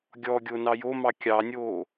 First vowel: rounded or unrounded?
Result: rounded